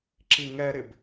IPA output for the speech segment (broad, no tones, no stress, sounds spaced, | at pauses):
ǁ i ŋ ɛ ɾ ɪ b